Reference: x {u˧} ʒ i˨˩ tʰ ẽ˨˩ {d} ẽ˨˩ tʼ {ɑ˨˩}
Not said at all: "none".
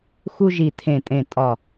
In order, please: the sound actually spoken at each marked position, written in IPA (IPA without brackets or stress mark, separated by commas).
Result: u˧, tʼ, ɒ˨˩